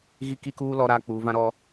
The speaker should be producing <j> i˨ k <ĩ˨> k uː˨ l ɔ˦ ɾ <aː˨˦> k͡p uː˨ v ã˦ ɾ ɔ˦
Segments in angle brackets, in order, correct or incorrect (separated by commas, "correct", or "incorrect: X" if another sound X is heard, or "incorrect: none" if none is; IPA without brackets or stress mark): incorrect: ɣ, incorrect: i˨, incorrect: aː˦